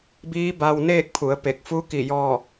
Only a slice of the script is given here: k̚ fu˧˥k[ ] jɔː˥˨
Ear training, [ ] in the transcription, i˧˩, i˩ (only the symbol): i˧˩